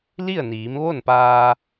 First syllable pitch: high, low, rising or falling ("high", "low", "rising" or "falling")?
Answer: falling